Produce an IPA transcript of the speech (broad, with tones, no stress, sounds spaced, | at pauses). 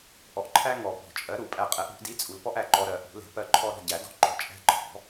ʔ ɔ˨ ʔ ǃʰ æ˦ ŋ ɔ˨˩˦ p ɔ̤˨˩˦ t͡ʃʼ ɜ˨˥ ɾ u˨˩˦ pʼ æ˦˨ qʼ ɛ˨˥ ʔ ɾ ṳ˨˥ ʔ d i˨˥ t͡sʼ u˨ l p ɔ˦ ʔ æ˨ ǃ ɔ˨ ɾ ɜ˨˩˦ ʔ ṳ˨˩˦ l ɛ̤˨˥ p ɜ˦ ǃʰ ɔ˦ ɾ ɔ̤˦˨ ɟ æ˨˩˦ d ɔ̤˦ ǃ ɔ̤˨ t͡ʃʼ æ̤˦˨ ǃʰ ɔ̤˨˩˦